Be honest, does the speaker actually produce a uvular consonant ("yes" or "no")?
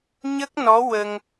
no